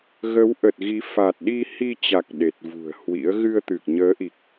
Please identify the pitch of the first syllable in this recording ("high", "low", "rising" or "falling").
rising